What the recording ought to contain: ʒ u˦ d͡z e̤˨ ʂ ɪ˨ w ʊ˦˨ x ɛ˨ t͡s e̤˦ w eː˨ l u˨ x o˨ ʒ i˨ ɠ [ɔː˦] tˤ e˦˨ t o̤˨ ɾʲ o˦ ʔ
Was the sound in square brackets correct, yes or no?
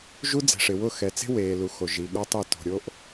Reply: no